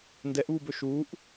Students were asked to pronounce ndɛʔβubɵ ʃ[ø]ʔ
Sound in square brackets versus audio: incorrect: u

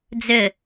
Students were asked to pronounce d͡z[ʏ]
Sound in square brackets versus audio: correct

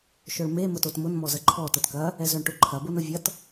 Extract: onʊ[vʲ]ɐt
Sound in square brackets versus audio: correct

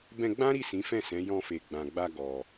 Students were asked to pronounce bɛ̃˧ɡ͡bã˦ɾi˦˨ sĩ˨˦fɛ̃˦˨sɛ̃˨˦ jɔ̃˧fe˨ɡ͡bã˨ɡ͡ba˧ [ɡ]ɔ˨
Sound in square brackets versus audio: correct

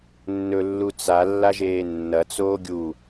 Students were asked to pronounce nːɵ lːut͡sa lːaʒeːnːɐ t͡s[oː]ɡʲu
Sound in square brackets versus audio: correct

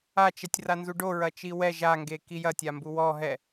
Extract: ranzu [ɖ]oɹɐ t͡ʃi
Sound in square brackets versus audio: correct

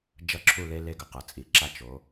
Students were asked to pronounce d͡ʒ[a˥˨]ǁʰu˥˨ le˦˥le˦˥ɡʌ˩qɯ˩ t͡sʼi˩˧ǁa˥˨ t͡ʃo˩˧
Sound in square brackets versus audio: incorrect: ʌ˥˨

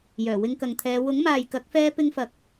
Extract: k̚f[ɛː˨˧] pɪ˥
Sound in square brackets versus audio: incorrect: ɛː˧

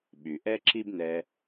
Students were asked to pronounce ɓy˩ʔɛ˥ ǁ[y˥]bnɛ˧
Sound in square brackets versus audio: incorrect: i˥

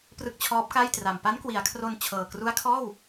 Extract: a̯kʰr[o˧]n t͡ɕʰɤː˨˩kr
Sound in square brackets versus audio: correct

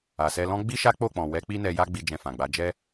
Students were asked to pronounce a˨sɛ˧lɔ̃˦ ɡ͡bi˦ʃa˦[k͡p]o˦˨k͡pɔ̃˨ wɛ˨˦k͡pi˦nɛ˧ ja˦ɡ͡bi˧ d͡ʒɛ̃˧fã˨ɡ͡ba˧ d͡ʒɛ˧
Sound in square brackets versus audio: correct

